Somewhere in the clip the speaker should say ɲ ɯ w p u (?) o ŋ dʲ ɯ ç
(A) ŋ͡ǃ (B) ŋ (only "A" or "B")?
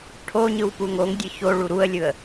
B